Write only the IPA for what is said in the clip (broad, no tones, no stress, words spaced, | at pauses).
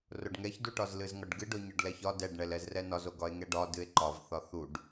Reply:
roɖŋɛçduʈɒz lɨzŋɒɖɡɨɖo ɲɒɖlɛçɒ dɛɖɳɛl ɛzrɛnɒzoɡ ɒe̯ŋɛɖɒ dɨe̯ǃɒv θɒθuɖ